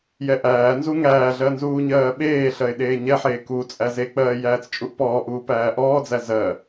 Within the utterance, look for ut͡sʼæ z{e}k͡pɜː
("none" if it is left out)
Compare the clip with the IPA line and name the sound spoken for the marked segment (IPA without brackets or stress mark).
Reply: e